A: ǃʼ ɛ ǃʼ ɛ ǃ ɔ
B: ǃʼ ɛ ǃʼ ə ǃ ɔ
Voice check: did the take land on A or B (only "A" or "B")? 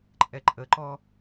B